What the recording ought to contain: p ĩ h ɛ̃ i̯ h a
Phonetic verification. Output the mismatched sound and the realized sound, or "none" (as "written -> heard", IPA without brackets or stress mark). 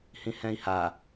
p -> h